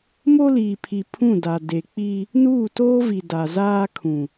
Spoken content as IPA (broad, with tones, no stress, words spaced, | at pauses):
mo˦liː˨pʰi˨ pʰũ˦˨da˨ de˨k͡pi˦ | nuː˦˨toː˦vi˨ da˨zaː˦kʰũ˨